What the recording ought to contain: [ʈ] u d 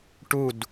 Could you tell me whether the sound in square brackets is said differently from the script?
no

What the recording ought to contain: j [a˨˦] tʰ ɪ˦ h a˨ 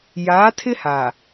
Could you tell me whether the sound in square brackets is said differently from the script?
no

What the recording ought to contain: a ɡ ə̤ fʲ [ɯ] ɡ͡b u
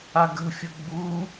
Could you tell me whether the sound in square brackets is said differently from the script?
yes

